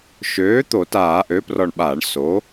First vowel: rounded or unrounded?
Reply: rounded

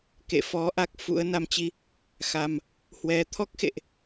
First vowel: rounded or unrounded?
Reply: unrounded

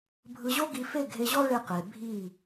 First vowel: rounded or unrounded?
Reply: unrounded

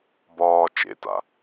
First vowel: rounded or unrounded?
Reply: rounded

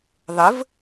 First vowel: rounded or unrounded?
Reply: unrounded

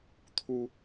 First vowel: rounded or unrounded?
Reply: rounded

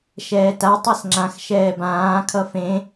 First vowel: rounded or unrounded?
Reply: unrounded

